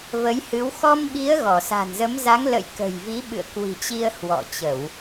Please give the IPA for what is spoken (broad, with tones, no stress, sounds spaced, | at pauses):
v ə˨˦ j h ɨ˨˦ w x ɔ˧ m ɓ i˨˦ ə̯ ɣ ɔ˧˩ s a̤˨˩ n z ə˨˦ m z a˨˦ ŋ l ə̰˧˨ j k ə̤˨˩ j v i˨˦ ɓ ɨ̰˧˨ ə̯ k w i̤˨˩ t͡ɕ i˧ ə̯ h w ɔ̰˧˨ t͡ɕ ə˧˩˨ w